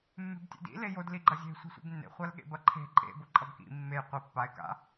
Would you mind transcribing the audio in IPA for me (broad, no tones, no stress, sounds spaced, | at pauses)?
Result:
mː e̤ b tʲ ḛ d ḭ l e j o d l i ɡ͡ǃ ɐ zʲ e̤ sʷ i̤ sʷ ḭ b nː ḛ χʷ a l ɠ ḛ b ɐ ǃʰ e̤ ǃʼ ḛ b o ǃʼ ɐ b k ḭ mː e j qʷ i pː a ɪ̯ k a̰